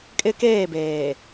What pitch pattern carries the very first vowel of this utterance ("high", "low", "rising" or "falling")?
high